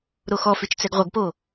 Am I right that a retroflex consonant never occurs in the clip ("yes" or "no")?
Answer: yes